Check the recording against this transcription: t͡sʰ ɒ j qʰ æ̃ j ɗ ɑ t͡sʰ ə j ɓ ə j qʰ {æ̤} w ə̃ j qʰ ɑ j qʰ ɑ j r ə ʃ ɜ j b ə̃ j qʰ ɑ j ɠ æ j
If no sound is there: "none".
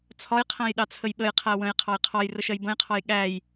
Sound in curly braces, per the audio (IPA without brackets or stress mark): æ